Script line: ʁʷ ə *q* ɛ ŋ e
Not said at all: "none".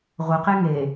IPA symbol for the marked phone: q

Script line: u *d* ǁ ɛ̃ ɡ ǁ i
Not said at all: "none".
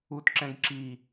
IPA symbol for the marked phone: t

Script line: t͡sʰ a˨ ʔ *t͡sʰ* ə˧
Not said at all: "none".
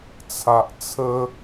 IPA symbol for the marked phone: t͡sʰ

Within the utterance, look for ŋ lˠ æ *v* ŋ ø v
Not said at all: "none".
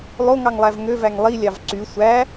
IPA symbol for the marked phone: v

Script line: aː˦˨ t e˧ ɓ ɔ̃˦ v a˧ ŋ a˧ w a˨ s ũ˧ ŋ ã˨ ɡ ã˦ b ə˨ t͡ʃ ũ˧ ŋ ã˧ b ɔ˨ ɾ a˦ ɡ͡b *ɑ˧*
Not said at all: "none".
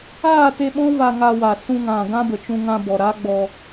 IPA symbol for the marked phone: ɔ˧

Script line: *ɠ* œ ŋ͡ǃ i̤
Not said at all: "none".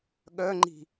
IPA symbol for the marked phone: ɠ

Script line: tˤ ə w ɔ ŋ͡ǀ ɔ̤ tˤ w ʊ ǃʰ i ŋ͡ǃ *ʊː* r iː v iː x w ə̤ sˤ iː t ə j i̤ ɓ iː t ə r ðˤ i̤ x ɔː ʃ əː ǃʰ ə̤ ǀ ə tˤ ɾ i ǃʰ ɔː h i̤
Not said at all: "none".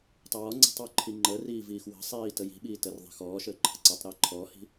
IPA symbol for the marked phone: əː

